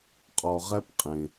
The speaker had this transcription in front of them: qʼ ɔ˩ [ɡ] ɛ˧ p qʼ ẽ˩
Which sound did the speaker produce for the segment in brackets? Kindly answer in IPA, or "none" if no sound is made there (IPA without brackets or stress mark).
ʁ